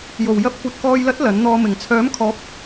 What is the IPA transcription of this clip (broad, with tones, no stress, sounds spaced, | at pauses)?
j o˨˩ w j ɐ˧ p̚ kʷ ɐ˨ t̚ k ɔː˨ j l ɐ˨˥ t̚ l ɐ˨˥ n n̪ ɔː˧ m ɪ˨˩ ŋ t͡sʰ œː˨˥ m kʰ ɔː˨˥ p̚